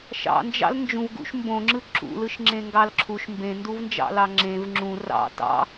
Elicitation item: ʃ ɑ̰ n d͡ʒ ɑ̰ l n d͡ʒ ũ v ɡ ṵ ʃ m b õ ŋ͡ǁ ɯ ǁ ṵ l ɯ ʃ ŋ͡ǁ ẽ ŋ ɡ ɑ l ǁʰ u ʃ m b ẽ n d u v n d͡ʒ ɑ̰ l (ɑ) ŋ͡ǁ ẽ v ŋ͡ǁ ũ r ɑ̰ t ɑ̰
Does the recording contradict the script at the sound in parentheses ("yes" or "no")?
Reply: no